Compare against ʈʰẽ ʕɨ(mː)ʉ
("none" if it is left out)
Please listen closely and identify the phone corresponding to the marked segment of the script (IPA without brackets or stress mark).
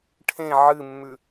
mː